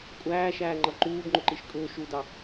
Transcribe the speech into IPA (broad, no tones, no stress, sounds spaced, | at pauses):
kʷʼ æː ʃ æː ŋ͡ǃ ʌ ǃ uː b ŋ͡ǃ ʊ ǃ i ʃ kʼ ʊː ʃ u d ɑ